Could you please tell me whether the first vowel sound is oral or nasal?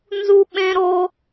oral